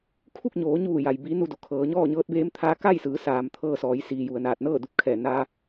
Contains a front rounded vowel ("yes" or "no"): no